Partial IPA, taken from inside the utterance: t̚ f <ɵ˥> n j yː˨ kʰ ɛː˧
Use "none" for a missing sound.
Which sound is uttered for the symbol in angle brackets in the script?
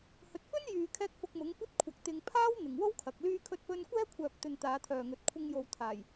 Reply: ɵ˥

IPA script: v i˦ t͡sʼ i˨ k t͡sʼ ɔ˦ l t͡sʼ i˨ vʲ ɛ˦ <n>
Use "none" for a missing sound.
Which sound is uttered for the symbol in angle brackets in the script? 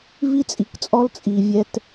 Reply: t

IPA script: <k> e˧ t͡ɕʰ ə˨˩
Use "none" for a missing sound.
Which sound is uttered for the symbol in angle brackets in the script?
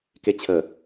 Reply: k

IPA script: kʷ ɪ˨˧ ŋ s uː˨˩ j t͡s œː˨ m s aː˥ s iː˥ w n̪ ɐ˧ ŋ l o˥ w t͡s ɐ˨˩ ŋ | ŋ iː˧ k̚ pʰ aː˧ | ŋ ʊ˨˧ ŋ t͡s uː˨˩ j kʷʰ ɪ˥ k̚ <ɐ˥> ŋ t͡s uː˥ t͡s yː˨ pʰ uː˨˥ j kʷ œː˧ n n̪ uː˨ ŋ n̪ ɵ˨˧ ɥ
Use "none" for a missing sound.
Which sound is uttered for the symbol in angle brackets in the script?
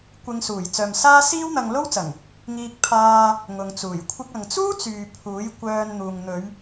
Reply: ɐ˨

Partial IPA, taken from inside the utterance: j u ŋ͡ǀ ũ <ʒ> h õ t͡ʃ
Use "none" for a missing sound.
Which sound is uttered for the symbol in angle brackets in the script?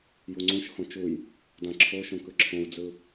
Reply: ʃ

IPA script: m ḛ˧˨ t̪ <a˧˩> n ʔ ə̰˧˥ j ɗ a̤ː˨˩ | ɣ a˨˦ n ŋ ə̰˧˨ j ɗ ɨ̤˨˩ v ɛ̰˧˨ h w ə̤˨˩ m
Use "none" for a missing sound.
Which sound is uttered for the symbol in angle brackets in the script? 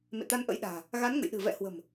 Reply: a˧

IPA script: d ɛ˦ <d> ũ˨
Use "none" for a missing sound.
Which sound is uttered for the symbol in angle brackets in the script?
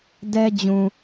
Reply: d͡ʑ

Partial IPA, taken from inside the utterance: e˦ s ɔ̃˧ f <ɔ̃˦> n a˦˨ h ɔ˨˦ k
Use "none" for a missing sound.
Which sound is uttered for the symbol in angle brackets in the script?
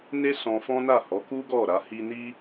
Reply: ɔ̃˦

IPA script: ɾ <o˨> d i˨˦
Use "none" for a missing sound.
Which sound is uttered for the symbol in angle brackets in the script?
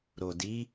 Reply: o˨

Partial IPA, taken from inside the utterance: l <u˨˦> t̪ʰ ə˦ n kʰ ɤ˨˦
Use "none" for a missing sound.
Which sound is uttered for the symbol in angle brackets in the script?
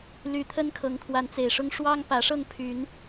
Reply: y˨˦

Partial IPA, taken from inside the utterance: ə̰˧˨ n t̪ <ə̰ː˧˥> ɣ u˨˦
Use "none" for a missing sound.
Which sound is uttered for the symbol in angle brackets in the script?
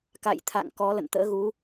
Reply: ə̰ː˧˥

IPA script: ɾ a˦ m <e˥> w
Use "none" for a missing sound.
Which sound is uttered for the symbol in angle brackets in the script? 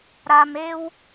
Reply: e˥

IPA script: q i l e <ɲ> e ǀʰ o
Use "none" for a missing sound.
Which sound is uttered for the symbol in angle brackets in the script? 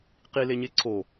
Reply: ɲ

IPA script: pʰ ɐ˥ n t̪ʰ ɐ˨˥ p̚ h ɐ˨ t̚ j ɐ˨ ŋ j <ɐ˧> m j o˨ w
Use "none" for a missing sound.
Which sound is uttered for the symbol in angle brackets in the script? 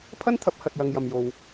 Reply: ɐ˨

